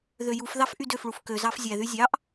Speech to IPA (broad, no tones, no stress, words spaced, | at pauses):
ðøjufðɑf ʔydøfɭuf køzɑf zʲæðy zʲɑʔ